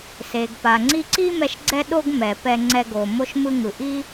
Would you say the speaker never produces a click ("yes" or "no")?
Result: no